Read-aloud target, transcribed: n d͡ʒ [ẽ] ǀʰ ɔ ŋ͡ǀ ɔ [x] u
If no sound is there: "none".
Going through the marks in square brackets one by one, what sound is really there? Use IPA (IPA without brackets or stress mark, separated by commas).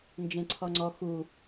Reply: ẽ, x